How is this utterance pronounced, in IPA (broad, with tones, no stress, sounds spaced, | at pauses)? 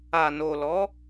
a˨ n o˨ l ɔ˨˦